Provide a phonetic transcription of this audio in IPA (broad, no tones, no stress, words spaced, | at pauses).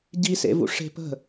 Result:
ɟisḛvṵ ʂe̤ pə̤